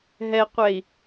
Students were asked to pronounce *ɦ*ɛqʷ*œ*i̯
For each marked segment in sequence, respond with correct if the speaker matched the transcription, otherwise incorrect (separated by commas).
correct, incorrect